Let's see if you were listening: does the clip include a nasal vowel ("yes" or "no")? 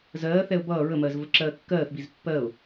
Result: no